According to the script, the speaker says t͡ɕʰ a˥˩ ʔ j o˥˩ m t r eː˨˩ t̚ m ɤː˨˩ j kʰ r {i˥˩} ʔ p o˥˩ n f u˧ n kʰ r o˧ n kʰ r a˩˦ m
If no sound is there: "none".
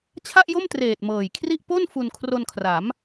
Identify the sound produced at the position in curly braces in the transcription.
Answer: i˥˩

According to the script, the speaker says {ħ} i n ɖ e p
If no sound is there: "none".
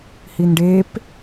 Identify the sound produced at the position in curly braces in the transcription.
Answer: h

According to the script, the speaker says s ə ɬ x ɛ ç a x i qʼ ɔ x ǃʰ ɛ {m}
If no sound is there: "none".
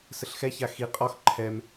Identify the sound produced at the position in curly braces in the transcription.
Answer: m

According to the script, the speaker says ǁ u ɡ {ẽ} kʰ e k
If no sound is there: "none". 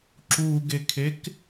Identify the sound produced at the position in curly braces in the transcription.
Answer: e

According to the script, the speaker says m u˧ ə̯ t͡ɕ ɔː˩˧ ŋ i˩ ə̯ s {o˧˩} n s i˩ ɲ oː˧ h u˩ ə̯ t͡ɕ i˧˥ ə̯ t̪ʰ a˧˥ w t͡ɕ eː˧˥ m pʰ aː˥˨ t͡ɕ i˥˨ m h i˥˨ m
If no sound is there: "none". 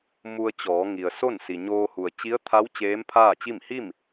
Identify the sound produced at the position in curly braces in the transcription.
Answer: o˥˨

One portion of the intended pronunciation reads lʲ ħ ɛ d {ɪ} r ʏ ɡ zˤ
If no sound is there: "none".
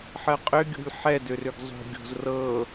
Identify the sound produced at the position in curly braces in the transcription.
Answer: ʏ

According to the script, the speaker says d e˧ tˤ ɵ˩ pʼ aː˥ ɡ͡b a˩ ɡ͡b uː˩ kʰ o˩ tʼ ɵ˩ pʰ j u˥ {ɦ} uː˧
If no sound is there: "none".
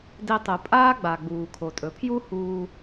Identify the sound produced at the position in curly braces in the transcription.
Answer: h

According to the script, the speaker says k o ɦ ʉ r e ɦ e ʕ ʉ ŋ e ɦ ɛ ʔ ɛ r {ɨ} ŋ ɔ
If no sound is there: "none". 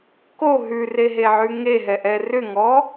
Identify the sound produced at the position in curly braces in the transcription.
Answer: ʏ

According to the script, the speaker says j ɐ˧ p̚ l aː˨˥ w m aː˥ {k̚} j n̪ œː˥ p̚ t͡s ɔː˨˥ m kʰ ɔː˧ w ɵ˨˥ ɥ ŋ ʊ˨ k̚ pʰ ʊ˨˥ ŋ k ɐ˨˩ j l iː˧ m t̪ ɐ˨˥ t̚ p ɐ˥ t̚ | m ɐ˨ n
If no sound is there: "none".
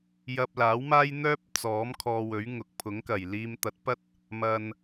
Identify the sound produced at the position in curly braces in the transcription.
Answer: none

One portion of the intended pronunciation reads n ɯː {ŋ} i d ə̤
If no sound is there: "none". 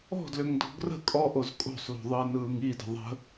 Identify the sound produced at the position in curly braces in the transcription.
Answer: ŋ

